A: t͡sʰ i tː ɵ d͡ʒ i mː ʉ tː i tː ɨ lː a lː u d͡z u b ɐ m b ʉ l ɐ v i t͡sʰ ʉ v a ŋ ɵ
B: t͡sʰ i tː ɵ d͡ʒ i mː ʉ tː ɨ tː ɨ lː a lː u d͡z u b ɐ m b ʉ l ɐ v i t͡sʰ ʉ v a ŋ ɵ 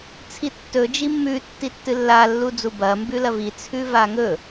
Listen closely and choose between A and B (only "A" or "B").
A